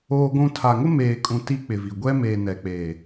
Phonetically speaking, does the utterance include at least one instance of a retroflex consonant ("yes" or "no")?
no